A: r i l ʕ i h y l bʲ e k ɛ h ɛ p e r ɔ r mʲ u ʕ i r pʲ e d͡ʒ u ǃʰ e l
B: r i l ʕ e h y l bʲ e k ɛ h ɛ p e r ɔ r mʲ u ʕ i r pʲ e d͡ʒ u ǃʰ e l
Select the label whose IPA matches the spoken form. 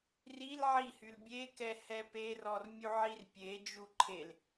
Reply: A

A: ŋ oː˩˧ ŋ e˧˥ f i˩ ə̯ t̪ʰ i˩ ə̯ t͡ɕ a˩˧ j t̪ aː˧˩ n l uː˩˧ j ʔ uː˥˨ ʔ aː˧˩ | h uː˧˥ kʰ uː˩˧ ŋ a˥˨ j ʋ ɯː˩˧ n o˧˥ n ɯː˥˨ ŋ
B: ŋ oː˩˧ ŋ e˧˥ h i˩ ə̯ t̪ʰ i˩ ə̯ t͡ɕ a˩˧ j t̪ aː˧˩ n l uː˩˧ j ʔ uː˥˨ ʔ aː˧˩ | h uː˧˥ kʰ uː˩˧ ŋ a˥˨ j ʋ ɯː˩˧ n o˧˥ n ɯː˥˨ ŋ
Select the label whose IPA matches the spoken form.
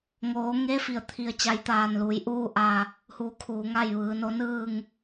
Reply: A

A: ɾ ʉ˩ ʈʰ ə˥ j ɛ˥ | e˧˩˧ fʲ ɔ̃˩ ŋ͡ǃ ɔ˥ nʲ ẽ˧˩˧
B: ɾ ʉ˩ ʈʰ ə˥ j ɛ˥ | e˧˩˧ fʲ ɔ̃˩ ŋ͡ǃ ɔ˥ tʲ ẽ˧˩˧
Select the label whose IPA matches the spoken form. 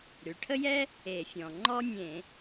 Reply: A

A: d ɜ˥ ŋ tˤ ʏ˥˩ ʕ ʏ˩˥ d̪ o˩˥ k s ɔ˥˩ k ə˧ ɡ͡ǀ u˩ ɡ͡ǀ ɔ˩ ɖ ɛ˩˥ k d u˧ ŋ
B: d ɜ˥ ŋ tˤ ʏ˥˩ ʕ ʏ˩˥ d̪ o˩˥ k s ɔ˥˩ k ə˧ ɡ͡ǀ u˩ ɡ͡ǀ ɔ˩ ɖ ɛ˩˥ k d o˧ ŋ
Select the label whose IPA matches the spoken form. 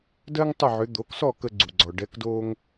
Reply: B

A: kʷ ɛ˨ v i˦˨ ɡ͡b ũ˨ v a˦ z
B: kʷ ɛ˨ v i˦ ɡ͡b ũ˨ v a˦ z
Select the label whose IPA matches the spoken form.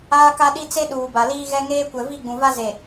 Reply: A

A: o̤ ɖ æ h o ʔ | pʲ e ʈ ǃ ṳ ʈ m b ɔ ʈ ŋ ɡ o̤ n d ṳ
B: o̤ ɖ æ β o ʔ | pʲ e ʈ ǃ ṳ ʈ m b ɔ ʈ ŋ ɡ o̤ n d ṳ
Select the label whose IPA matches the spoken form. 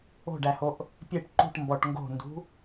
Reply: A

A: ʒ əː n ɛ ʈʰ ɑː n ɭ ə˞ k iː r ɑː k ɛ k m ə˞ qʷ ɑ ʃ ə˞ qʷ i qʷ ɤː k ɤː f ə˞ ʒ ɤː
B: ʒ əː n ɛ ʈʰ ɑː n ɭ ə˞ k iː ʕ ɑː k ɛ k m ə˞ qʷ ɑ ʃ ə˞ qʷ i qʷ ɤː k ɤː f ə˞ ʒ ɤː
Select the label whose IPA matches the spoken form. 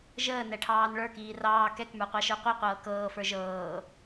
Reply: A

